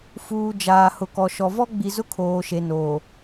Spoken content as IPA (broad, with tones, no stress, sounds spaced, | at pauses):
f uː˨ d͡ʒ aː˨ h ʊ˨ k ɔ˨ ʃ ɔ˨ v ɔ˦ ɡ͡b i˨ z ʊ˦ kʰ oː˨ ʃ e˨ n oː˨